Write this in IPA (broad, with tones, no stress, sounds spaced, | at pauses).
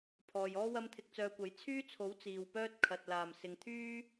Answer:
pʰ ɔː˨ j ɔː˥ w ɐ˥ m t̪ʰ ɪ˧ k̚ t͡s œː˧ kʷ ɐ˨˥ j t͡sʰ yː˥ t͡sʰ o˨˥ w t͡s iː˨ w p œː˥ t̚ kʰ ɐ˨ t̚ l aː˨˩ m s ɪ˨ ŋ t̪ʰ yː˥